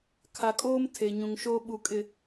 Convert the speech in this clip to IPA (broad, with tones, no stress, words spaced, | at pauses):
kʰa˨kʼoː˦m tʰe˨ɲũ˨ŋʃoː˦ ɓu˨kʼɪ˨